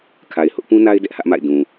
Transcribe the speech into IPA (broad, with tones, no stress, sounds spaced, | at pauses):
kʰ a˨ ɪ̯ h ʊ˦ ʔ p ũ˦ n a˦ ɪ̯ d ɛ˦ ʔ h ä˦ ʔ m a̰˦˨ ɪ̯ d ũ˨